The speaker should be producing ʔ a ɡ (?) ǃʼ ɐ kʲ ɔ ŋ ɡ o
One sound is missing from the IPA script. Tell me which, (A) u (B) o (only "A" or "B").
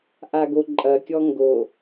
B